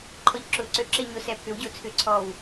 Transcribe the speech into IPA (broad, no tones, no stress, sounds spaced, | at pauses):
ǃʰ ɔ ʎ ǁ ʊː ǀ ø ǁ e ɲ ʊ s ɛ pʰ ʏ w ɟ ʊː t͡sʰ ʏ ǀʰ ɔː w